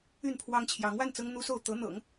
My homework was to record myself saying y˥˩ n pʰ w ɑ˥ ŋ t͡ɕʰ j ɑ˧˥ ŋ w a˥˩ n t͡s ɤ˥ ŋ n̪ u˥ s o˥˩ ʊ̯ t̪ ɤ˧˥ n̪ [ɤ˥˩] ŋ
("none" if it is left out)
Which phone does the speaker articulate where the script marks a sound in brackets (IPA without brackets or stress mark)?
ɤ̰˨˩˦